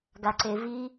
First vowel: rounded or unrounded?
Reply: unrounded